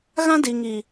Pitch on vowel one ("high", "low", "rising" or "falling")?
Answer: high